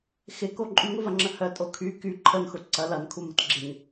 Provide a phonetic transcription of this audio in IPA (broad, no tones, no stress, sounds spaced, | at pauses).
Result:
x ɪ k o ǃʼ y ŋ ʊ v ɐ ŋ͡ǁ ə h œ tʼ o kʰ y k y ǃʰ ə n x ʊ ǀ ɐ l ɐ n kʰ u m ə t ɡ͡ǁ ɪ ŋ